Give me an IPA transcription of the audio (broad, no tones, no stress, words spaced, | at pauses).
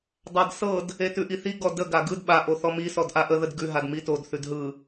dˤadsɤd | etʉʔiθi ɡɔdə ɡaɡɯd ɓa ʔoθɔmi sɔdʔaʔə ðədɡʉ ɦadmitod θʉdɦɯ